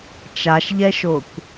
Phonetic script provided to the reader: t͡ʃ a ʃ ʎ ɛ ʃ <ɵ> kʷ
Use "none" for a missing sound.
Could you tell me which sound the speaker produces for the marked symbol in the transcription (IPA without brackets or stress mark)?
o